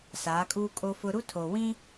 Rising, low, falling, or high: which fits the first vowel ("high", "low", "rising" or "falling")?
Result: rising